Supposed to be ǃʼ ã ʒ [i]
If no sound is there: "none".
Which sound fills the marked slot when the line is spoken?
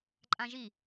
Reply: i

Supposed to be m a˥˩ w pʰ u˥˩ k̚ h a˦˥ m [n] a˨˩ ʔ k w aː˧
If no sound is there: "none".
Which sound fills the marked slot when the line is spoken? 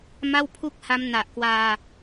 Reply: n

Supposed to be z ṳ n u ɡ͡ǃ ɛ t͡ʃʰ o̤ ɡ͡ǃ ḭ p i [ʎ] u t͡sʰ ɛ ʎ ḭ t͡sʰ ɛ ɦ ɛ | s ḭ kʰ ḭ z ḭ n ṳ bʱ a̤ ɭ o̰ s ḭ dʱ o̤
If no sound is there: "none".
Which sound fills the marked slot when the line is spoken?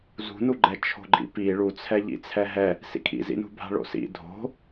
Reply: ɭ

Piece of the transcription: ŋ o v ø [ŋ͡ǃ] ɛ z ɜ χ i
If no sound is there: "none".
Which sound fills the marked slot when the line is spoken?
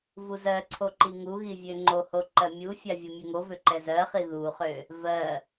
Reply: ǃ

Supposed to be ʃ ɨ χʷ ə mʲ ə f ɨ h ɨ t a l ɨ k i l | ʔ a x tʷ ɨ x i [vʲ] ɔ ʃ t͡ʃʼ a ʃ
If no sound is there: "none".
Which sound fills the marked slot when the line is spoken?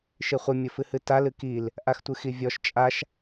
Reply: vʲ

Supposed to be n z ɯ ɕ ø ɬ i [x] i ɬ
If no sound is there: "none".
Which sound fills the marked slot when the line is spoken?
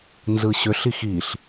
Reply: x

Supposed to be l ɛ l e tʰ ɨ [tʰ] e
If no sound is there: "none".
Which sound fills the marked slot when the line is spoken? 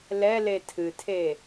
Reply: tʰ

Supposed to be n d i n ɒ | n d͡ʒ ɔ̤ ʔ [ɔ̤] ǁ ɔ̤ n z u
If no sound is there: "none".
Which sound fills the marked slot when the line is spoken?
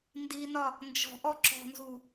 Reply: ɔ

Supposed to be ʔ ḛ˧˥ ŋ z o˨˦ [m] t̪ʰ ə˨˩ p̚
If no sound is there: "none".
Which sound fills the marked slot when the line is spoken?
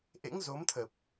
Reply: m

